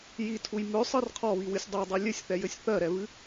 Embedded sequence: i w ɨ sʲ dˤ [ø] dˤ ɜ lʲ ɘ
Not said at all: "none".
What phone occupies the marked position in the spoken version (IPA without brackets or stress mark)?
ø